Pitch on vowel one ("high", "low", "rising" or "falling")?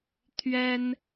high